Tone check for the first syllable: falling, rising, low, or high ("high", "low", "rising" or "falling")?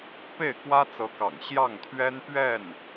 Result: falling